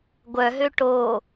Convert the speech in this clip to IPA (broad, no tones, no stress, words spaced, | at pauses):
ɡʷœɦø ʈo